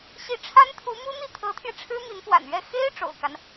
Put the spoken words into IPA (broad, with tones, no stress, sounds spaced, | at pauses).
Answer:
ɕ i˧˥ ʈ͡ʂʰ a˥ n t̪ʰ u˧˥ m u˥ n̪ i˥˩ t̪ʰ ɤ˧˥ t̪ʰ j ɛ˧ ʈ͡ʂʰ ɻ̩˥ m i˧˥ n p w a̰˨˩ n ɥ ɛ˥˩ x e˥ ɪ̯ ʈ͡ʂ o̰˨˩ ʊ̯ k a˦ n